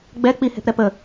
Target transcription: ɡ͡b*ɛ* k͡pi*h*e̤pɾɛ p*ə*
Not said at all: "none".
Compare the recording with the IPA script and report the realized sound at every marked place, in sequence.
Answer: ɛ, h, ə

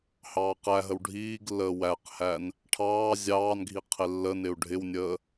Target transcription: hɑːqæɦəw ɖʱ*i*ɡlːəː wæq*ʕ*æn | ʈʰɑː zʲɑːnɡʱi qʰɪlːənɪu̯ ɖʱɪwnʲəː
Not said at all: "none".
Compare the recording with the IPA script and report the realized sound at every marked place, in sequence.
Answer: iː, h

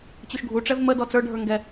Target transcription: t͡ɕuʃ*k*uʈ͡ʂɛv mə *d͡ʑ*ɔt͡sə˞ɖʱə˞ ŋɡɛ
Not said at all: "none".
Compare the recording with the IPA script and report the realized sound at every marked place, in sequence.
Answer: ɡʱ, d

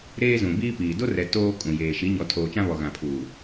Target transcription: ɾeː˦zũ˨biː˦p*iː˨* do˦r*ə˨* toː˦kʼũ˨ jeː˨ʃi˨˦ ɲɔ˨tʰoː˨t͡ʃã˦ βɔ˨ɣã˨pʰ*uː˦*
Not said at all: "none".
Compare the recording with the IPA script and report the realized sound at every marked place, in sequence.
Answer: iː˨, ɛ˨, uː˨

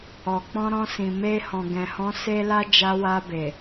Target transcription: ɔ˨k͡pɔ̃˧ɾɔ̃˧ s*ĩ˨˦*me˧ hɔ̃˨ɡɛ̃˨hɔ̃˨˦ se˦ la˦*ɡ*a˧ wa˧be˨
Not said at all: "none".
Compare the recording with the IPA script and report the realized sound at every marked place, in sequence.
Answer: ĩ˨, d͡ʒ

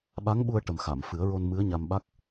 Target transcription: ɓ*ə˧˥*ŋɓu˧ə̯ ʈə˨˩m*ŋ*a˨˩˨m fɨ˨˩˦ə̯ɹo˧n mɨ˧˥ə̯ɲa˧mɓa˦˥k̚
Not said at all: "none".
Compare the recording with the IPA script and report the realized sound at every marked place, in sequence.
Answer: a˧˥, x

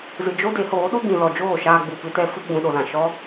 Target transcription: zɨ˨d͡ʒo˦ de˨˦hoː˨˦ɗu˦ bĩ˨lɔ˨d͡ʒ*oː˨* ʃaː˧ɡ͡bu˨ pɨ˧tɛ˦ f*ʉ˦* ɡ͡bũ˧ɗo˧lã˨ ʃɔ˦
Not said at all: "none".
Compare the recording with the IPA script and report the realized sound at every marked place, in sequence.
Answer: oː˦˨, ɨ˦

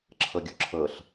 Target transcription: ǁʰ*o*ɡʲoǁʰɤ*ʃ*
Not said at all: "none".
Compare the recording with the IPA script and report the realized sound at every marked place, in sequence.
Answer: ɤ, ɬ

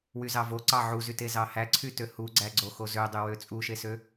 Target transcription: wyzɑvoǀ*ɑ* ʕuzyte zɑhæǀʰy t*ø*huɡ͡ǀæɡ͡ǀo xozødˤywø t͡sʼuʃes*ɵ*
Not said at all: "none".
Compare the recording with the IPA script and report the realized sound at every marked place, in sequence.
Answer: ɑ, ø, ø

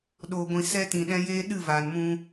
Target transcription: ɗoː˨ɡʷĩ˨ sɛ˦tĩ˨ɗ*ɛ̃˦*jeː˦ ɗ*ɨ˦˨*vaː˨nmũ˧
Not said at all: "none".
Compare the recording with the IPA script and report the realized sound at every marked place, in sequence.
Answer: ɛ̃˦, ɨ˦˨

